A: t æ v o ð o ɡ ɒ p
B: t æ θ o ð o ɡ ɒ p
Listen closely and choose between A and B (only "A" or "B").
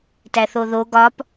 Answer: B